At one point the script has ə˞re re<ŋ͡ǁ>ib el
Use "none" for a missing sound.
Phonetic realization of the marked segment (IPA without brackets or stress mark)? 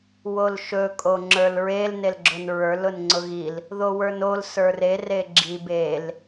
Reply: ɡ͡ǁ